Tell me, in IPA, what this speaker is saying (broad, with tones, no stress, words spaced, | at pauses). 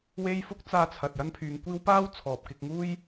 we˥j fʊ˥k̚t͡saː˧t͡sʰɐ˨t̚ jɐ˥npʰyː˨˧ŋkʷiː˥w paː˥w t͡sʰɔː˨p̚ kɪ˧k̚ŋuː˥j